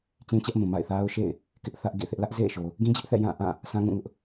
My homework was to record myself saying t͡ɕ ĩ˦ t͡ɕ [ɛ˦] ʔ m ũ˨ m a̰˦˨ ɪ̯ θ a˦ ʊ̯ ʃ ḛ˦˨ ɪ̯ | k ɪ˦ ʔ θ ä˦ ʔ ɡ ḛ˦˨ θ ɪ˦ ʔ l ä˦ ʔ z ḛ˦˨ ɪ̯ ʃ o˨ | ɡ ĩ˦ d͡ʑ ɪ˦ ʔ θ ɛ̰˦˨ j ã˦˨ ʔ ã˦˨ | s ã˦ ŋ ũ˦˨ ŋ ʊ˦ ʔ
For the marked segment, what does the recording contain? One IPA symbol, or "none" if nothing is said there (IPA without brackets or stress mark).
ɛ˦